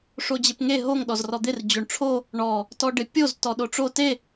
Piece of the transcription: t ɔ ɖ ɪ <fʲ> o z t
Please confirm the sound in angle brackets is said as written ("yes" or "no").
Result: no